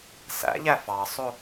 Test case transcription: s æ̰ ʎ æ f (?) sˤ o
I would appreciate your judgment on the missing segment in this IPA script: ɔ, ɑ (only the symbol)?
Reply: ɑ